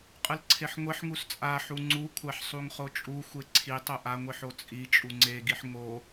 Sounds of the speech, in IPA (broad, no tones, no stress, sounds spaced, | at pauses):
qʼ ɯ l ǀʰ e ħ ŋʷ e ħ ŋ u s t͡sʼ a ħ u ŋ͡ǀ u kʷʰ a ħ sˤ u ŋ χ o t͡ʃʼ u xʷ e ǀʰ i tˤ o ʔ a ŋʷ i ħ o t͡sʼ i t͡ʃʼ u ŋ͡ǀ e ɡ i ħ ŋ o